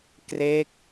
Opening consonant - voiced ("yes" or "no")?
no